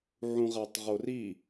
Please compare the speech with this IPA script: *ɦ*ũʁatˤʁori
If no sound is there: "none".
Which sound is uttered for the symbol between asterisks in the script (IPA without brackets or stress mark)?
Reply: ʕ